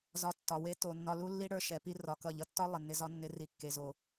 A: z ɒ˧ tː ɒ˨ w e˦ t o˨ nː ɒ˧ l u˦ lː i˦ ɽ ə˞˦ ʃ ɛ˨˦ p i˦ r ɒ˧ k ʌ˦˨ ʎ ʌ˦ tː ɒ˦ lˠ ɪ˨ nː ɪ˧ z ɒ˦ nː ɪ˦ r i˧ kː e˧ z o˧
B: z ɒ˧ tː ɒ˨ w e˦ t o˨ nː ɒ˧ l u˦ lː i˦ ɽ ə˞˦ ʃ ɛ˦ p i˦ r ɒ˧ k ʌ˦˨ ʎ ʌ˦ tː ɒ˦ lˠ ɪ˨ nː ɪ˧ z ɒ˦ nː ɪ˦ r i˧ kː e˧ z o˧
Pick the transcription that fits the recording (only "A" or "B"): A